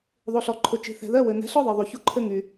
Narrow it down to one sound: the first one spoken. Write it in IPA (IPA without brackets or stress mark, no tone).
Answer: ðˤ